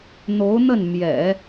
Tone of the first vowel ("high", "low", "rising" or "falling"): rising